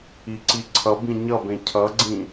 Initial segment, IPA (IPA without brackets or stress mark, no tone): i